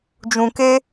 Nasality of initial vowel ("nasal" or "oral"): nasal